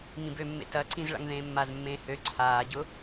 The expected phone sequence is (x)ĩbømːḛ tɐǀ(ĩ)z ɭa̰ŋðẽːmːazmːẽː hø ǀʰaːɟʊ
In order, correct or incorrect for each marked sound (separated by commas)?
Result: incorrect, correct